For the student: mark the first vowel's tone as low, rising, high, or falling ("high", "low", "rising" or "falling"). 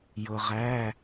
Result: low